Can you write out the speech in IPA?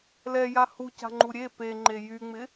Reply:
l ɛ j a h u c a̤ ŋ͡ǃ u ɾʲ e p e ŋ͡ǃ e j y ŋ͡m ɪ

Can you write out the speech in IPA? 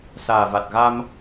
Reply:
s aː˨˩ v a˨˩ t̚ ɣ a˧ m

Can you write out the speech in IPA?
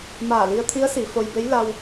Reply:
m aː˧˩ l i˧ ə̯ t̪ʰ i˧˥ ə̯ s i˩˧ f o˧ j b e˧˥ j l a˧ w

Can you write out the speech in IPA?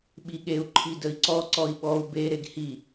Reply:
ɓ i ɠ e u̯ ǃʰ i d ə i̯ ǀ ɔ ǀ ɔ i̯ ɓ ɔ u̯ b e ɾ e ɡ h i

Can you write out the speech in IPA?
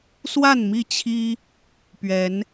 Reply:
s w a˥˨ n m i˥˨ t͡ɕʰ i˦ | p ɥ ɛ˨˦ n

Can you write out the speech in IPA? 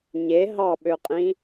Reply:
ɲ e ɦ ɑ ɓ ø qʼ ĩ

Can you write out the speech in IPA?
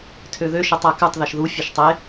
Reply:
tʰ ø ð ø ʃ ɛ tˤ æ k ʉ tˤ ð ɛ ʃ ð u fʲ e ʃ tˤ e

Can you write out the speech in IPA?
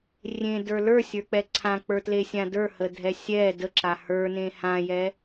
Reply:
rʲ ẽ d ə˞ l ə˞ sʲ ə˞ k͡p ɛ ǀʰ ã k͡p ə˞ t l e sʲ ã d ə˞ h ə dʱ ɛ sʲ ɛ d ə ǁ a h ə˞ n ẽ h ã j ɛ

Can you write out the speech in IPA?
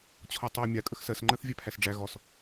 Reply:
t͡ɕʰ ɔ tˤ æ mʲ a kʼ ə x s ɜ s ŋ͡ǃ ɜ θ vʲ æ pʰ æ s ɖ͡ʐ æ ɣ ɔ s

